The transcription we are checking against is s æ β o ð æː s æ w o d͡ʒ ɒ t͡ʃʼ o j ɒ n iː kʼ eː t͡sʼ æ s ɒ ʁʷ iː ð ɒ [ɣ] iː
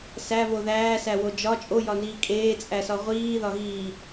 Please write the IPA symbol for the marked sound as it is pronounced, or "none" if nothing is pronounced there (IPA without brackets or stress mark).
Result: ɣ